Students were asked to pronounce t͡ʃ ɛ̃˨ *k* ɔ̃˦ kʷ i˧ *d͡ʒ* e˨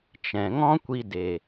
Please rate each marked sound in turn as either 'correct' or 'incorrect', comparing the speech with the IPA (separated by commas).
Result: incorrect, incorrect